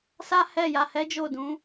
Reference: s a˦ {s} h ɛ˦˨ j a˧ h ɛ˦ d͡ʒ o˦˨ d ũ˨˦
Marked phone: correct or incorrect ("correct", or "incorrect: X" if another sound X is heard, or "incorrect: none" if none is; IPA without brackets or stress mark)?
incorrect: none